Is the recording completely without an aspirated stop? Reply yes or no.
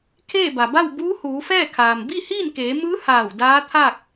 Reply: no